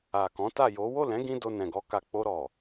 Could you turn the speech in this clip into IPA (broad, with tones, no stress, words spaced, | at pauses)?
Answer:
a˨kɔ̃˨˦ ta˦˨jo˨˦ wo˦˨lɛ̃˨˦ɡĩ˧ do˧nɛ̃˨ɡɔ˧ka˧ k͡po˧ɾɔ˨